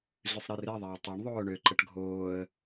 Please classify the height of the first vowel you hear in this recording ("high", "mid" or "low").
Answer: high